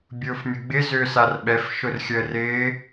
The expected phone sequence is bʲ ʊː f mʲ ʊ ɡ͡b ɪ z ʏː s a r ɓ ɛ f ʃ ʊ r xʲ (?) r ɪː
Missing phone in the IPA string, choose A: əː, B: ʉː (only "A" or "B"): A